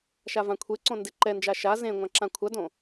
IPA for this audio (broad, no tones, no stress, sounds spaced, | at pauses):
ʃ a v ã kʷʰ e ǀ õ n d e ǃ ɛ n d͡ʒ a ʃ a z ẽ ŋʷ ã ǁ ã kʷʰ a d õ